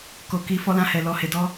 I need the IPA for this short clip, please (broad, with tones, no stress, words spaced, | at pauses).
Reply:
ko˨ ki˨ fɔ˧lã˧hɛ˨ lɔ˨he˨ dɔ˧